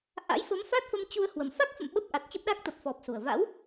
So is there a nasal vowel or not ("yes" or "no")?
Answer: no